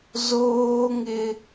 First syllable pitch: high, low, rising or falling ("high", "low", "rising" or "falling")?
high